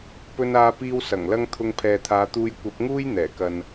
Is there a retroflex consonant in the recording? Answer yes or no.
no